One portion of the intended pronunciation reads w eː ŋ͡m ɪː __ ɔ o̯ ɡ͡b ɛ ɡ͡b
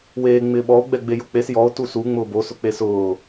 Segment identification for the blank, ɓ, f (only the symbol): ɓ